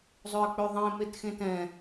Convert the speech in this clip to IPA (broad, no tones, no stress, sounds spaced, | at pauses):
zˤ ø ə̯ k͡p ø ðˤ ẽ m e t x ẽ t ɛ̃